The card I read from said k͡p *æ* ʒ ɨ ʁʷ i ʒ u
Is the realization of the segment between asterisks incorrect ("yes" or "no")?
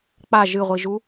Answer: yes